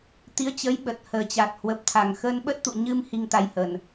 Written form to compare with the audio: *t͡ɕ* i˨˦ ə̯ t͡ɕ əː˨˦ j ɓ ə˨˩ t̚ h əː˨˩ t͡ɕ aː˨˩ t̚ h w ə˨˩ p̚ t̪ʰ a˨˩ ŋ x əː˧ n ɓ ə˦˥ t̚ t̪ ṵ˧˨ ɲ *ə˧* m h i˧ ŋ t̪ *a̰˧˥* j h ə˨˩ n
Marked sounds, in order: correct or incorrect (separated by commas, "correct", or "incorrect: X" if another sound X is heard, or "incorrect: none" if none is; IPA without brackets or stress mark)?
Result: incorrect: t̪, incorrect: ɨ˧, incorrect: a˧